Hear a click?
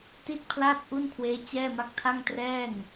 no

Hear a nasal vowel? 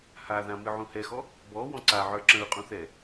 yes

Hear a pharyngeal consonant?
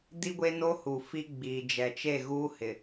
no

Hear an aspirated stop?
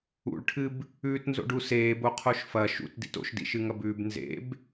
yes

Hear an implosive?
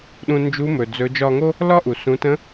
yes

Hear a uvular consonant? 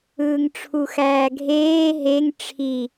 no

